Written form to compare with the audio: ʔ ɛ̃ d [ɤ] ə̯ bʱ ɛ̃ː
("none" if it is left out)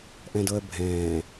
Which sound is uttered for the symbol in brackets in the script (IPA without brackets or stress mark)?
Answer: ɤ